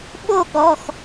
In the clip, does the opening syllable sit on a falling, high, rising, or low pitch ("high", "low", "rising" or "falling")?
falling